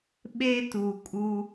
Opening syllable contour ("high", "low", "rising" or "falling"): high